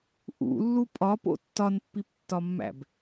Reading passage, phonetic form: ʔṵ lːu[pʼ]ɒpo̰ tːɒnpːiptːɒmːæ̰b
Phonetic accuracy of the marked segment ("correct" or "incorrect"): correct